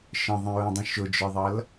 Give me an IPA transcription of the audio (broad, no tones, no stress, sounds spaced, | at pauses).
ʃ ə̃ ðˤ ĩ ɹ ə̃ dˤ ə̃ ʃ ʊ d͡ʒ ə˞ ðˤ ʌ l